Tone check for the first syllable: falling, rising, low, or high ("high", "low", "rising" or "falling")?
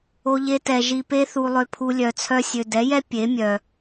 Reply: high